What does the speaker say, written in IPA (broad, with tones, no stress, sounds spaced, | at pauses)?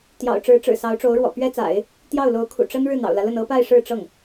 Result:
t̪ j ɑ̰˨˩ ʊ̯ ʈ͡ʂ ɻ̩˧˥ ʈ͡ʂ ɻ̩˨˩ s ɑ˧˥ ʊ̯ ʈ͡ʂ o˧˥ ʊ̯ ɻ w ɔ̰˨˩ p ɥ ɛ˥ t͡s a̰˨˩˦ ɪ̯ | t̪ j ɑ˥˩ ʊ̯ l o˧˥ ʊ̯ kʰ ṵ˨˩ ʈ͡ʂ ə˥ n ɻ ɻ̩˥˩ n̪ ɑ̰˨˩ ʊ̯ l ä˦ l ə˥˩ n ɤ˥ p a˥˧ ɪ̯ ʂ ɻ̩˥˧ ʈ͡ʂ ɤ˥˩ ŋ